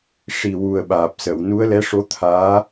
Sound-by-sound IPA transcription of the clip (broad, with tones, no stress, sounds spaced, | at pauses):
ʂ i˨˩ w u˨˩ ə̯ ɓ aː˨˩ p̚ s ə˨˩˨ w n u˧˥ ə̯ l ɛ˧˥ ʂ o˧˥ t̪ʰ aː˧˥